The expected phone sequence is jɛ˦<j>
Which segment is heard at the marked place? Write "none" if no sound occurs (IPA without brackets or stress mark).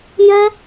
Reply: none